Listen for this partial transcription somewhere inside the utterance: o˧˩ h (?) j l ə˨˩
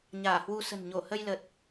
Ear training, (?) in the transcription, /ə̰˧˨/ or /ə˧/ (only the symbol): ə˧